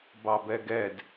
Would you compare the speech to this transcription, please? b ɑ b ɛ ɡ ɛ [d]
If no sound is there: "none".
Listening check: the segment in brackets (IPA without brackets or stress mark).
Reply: d